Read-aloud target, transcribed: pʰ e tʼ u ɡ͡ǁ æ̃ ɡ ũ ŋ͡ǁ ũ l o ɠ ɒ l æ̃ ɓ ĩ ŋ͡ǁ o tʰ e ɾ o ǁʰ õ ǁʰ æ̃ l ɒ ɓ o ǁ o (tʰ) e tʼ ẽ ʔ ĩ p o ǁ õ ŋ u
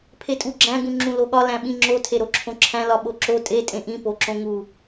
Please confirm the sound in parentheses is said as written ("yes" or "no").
no